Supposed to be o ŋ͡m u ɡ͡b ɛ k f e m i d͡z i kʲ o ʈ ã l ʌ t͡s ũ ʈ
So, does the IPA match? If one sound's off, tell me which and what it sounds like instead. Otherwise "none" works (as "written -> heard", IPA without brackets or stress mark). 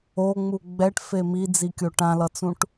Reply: k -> ʈ